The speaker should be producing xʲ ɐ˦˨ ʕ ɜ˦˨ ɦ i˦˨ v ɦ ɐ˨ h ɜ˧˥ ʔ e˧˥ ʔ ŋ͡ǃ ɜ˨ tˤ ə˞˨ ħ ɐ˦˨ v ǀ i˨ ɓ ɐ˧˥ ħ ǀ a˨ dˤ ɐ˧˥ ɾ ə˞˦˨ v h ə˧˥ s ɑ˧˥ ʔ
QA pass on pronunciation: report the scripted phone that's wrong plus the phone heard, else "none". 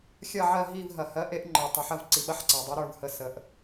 ɑ˧˥ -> ə˧˥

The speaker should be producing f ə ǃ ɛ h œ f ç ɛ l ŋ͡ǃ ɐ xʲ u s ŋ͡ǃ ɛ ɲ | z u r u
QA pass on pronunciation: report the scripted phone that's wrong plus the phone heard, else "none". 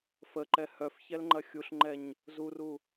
s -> ɬ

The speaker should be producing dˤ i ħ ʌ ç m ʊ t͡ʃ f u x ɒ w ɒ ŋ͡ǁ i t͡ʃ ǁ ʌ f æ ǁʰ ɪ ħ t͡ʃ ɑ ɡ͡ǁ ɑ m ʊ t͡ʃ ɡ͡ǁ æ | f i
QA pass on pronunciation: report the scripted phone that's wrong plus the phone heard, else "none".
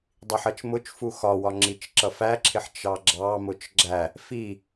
ç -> t͡ʃ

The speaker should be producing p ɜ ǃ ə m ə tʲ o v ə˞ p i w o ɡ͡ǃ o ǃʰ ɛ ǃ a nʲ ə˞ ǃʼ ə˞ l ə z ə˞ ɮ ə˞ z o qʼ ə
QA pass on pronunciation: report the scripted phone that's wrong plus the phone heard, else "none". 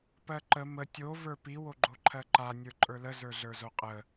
ɛ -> ɜ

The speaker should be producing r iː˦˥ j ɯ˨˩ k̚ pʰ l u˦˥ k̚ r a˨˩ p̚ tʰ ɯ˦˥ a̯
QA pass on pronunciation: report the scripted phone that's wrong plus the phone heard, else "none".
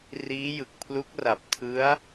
none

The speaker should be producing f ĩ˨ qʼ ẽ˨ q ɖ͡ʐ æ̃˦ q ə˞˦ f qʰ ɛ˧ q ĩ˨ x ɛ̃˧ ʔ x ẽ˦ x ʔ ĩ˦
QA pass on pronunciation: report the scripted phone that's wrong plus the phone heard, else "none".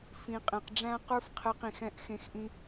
none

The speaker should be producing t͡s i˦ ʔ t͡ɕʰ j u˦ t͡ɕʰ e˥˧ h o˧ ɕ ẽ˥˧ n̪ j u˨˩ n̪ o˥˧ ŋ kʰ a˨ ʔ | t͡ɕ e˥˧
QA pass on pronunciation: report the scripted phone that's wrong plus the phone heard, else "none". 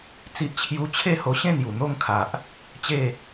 none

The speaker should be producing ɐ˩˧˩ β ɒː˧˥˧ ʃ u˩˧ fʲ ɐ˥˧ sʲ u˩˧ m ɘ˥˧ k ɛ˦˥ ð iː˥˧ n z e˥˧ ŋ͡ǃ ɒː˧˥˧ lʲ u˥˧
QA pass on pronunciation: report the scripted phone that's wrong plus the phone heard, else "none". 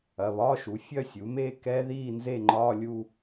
ɘ˥˧ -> e˥˧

